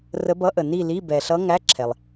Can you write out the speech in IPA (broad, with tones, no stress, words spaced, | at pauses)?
rə˧˥bʌ˧˥ʔə˩ ni˥˧li˧˥˧ bɛ˩ɬʌ˧˥ ŋæ˧˥˧ǁʰɛ˩lˠ